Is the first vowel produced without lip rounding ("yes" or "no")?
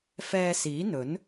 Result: yes